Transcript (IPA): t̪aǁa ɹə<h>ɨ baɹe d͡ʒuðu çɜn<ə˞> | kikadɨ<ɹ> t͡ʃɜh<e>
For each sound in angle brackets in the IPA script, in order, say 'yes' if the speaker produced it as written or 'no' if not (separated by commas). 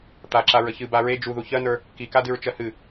no, yes, yes, no